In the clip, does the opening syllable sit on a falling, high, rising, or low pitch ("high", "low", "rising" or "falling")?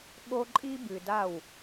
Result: high